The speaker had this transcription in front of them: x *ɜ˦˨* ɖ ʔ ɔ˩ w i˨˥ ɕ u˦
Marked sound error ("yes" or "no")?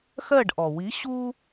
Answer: no